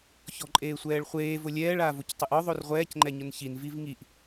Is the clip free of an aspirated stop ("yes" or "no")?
yes